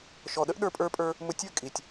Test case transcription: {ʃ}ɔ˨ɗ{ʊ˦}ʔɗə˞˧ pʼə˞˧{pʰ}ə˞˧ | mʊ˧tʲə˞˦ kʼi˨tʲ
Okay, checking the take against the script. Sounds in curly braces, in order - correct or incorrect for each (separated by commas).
correct, incorrect, incorrect